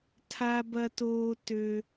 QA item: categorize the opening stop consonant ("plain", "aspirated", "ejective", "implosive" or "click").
aspirated